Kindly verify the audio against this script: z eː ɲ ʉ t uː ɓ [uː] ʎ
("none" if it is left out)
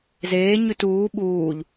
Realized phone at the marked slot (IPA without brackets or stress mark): uː